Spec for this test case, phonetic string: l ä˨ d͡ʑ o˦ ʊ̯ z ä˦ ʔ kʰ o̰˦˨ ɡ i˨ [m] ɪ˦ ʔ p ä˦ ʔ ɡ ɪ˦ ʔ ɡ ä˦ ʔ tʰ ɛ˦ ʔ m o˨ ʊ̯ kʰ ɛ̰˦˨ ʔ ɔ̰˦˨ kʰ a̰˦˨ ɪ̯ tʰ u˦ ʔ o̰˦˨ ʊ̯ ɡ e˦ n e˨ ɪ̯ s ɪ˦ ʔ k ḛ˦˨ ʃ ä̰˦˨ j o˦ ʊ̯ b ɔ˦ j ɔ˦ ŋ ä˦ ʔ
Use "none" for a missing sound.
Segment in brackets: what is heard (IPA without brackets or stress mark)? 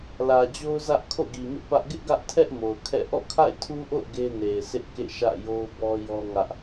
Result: m